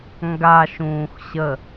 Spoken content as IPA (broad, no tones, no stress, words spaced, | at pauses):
ŋɡa ʃũːxɕə